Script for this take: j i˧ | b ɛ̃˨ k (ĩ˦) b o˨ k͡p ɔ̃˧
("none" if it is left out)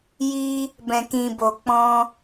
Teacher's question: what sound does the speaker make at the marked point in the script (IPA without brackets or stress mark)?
ĩ˨